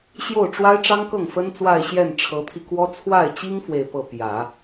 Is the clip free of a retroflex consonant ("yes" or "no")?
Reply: no